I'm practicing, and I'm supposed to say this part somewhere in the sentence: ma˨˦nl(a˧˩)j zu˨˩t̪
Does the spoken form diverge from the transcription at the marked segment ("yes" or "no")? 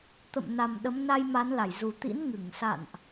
no